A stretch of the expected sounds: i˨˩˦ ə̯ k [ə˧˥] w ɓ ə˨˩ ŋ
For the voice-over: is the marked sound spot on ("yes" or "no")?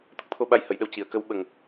yes